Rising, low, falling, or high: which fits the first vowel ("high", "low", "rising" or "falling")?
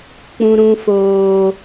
high